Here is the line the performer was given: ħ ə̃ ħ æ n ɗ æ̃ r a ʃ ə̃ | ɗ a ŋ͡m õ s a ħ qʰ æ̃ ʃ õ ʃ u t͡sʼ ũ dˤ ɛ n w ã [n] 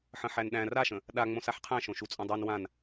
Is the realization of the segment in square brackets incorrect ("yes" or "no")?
no